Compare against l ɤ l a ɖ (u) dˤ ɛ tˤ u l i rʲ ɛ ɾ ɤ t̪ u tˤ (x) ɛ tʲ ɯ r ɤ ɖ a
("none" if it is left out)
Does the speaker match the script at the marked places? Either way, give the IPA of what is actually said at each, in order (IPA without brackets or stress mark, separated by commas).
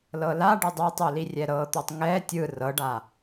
ɯ, ŋ